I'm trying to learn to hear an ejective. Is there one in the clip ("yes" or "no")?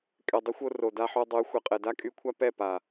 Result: yes